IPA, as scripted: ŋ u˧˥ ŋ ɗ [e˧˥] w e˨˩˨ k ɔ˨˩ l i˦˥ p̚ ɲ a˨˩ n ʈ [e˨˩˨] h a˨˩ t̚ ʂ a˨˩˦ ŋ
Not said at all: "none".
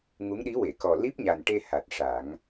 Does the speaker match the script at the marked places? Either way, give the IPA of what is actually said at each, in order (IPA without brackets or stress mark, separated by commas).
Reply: i˧˥, e˧